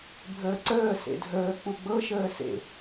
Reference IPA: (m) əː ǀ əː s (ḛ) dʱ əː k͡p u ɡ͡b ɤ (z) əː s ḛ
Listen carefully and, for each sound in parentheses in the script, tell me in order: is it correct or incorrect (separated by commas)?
incorrect, correct, incorrect